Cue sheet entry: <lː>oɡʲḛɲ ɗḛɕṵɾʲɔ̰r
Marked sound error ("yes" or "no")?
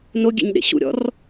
yes